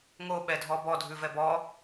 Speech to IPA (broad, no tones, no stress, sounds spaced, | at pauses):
ŋ o ɓ ɛ dʱ ɔ b ɔ dʱ ʉ v ɛ b ɔ